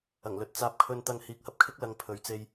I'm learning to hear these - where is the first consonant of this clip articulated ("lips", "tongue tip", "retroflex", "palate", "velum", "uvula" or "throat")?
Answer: velum